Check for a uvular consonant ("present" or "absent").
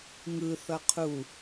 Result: present